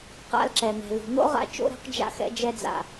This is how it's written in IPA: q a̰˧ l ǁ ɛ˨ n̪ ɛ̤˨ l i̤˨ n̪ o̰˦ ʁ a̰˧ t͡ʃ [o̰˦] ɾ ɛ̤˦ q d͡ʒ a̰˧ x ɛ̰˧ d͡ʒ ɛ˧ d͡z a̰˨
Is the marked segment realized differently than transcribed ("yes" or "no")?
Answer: no